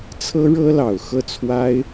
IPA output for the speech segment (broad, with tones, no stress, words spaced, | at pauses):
t͡sʰɤ˥ɻɤ˥lɑ˨˩ʊ̯ xɤ˥˩t͡sʰwa˥ɪ̯